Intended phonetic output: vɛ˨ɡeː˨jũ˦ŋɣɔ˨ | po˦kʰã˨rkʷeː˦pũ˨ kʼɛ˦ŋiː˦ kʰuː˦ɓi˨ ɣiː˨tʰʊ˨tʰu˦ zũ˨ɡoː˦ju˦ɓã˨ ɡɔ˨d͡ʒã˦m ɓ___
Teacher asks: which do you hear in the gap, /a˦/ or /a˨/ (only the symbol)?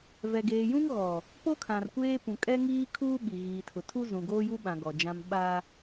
a˦